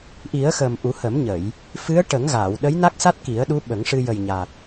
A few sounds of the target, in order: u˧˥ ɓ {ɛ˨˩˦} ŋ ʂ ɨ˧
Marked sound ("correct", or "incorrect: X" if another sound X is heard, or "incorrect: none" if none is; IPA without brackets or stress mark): incorrect: ə˨˩˦